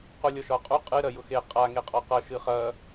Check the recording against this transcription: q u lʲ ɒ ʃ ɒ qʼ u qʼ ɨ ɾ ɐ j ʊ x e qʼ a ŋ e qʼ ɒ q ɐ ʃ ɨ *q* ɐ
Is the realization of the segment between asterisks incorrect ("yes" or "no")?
yes